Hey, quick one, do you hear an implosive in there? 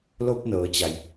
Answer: no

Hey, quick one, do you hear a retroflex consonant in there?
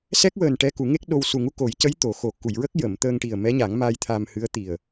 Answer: yes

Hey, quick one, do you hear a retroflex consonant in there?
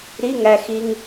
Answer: no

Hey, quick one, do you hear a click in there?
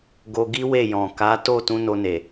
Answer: no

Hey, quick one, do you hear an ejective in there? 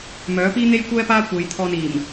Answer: no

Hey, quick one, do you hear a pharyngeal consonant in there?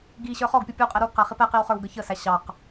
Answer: no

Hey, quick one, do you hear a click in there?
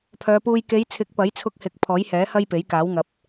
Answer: no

